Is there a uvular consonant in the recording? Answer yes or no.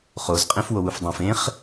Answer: yes